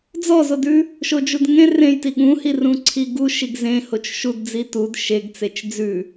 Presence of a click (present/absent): present